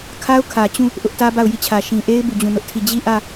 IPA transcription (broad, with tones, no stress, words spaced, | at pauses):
kʰa˦ʊ̯kʰä˨t͡ɕũ˦˨ | ʔʊ˦ʔtä˦ba˦˨ʊ̯ ji˦˨t͡ɕʰä˨ ʃĩ˨ʔe˦ɪ̯ bu˦˨d͡ʑũ˦˨nʊ˦ʔtʰi˦˨ d͡ʑi˦˨ʔä˦˨